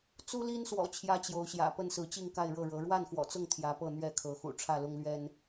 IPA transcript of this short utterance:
t͡s u˦ l i˦ n s w ɔ̰˨˩ t͡ɕʰ j ä˦ t͡ɕ j o˨˦ ʊ̯ ɕ j ä̰˨˩ p ə˥˨ n s ɹ̩˨˦ t͡ɕ i˥˨ ŋ k a˥˨ ɪ̯ ɻ ɤ˥˨ ɻ ɤ˨˦ ɻ w a˥˨ n x w ɔ̰˨˩ t͡s ʊ˥˨ ŋ t̪ʰ j ä˨˦ p ɤ˥˨ n̪ ɥ ɛ˥˨ kʰ ɤ˨˦ x ṵ˨˩ ʈ͡ʂʰ ä˥˨ l ʊ˦ ŋ l ɥ ɛ˦ n

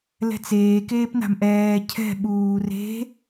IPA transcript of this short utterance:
l ɛ̤ t͡s eː k eː p n a̤ m ʔ ɛː cʰ ɛ̤ ɓ uː r e̤

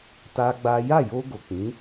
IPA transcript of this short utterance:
t a˦ ɡ͡b a˦ j a˦˨ j o˧ ɡ o˨ k͡p ĩ˨˦

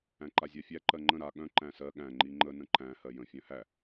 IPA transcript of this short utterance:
æ̃ ǃ a zʲ a fʲ æ ǃ ɜ ŋ͡ǃ ə̃ ɾ a ɠ œ̃ ǃ æ̃ s ɜ ɠ æ̃ ŋ͡ǃ i ŋ͡ǃ ə n ə̃ ǃ æ̃ h ɜ j ə̃ fʲ œ̃ h æ

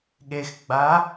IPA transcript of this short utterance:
ɠ e x ɡ͡b a

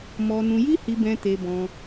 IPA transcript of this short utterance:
m ɔ˧ n ũ˧ j i˦ h i˧ b ɛ̃˧ t e˧ b ɔ̃˧

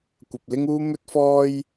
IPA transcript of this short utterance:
kʷ ɐ˨ p̚ l ɪ˥ ŋ uː˥ m ɵ˥ t̚ f ɔː˥ j

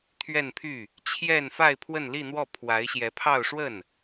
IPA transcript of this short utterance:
t̪ʰ ɥ ɛ˥˧ n pʰ y˥˩ | t͡ɕʰ j ɛ˥˧ n f a˥˧ ɪ̯ pʰ w ə˥˧ n l i˥˧ n̪ w ɔ˥˩ pʰ w a˧˥ ɪ̯ ɕ j ɛ˧˥ pʰ ɑ˥˧ ʊ̯ ʂ w ə˥˩ n

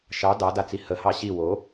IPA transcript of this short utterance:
ʃ ɑ d ɑ d a t͡s i h ə h ɑ ɕ i w o

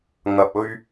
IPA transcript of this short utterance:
ŋ ɐ˨ p̚ ɵ˧ ɥ

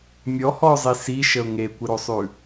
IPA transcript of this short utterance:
mʲ ɔ h ɔ ʊ̯ zˤ i s i ʃ ə ʊ̯ ŋ e kʷ ɪ ɾ o sˤ ʉ

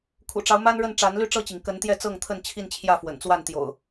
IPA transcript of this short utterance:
kʰ ṵ˨˩ ʈ͡ʂ ɑ˦ ʊ̯ m a˦ n ɻ ə˥˨ n ʈ͡ʂ a˨˦ n l y˥˨ ʈ͡ʂ ɤ˥˨ t͡ɕ i˩ ŋ k ə˨˦ n t̪ j ɛ˥˨ t͡s ɤ˥˨ ŋ t̪ʰ ə˥˨ n t͡ɕʰ i˥˨ n t͡ɕʰ j ä˥˨ f w ə̰˨˩ n t͡s w a˥˨ n t̪ j o̰˨˩ ʊ̯

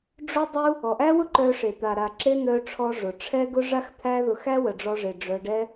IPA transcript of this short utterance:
ɖ͡ʐ ʊ˦ dˤ u˦ | ɔ˨ ʔ æ˦ w ʊ˦ ǃ œ˧ ʂ e˨ t̪ a˨ ɾ a˨ ǁ e˧ n̪ œ˧ ʈ͡ʂʰ ɔ˧ ʐ ʊ˨ ʈ͡ʂʰ ɛ˦ ɡ ʊ˦ ʐ a˦ x t̪ʰ æ˦ ð ʊ˧ x æ˦ w ə˨ ɖ͡ʐ ɔ˧ ʐ e˨ ɖ͡ʐ œ˧ ɖ ɛ˦

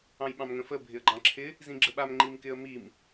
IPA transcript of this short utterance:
ɑ̃ j ɓ ɑ̃ m ŋ ə̃ f ə bʱ ɪ ə̯ ɡ͡ǃ ɑ̃ ǁʰ ɪ | z ĩ ɡ͡ǁ ə ɓ a m ŋ͡ǃ i m k ɪ ə̯ m i m

